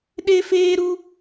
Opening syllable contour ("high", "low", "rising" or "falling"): high